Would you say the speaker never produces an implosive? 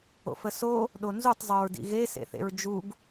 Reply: no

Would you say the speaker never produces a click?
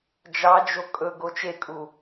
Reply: yes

